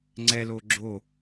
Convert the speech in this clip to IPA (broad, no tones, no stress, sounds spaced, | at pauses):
ŋ͡ǀ ɛ l oː ɡ͡ǁ o